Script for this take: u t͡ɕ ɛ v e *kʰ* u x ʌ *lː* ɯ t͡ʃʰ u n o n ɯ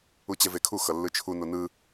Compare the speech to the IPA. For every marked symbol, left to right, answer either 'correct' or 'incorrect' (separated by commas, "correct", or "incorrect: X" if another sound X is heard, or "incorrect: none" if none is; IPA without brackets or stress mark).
correct, correct